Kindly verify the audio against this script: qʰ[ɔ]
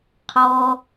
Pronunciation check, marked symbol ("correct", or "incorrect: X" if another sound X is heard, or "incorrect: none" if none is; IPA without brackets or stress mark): correct